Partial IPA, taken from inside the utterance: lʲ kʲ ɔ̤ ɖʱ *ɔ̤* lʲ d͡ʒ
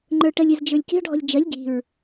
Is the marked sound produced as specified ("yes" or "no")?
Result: yes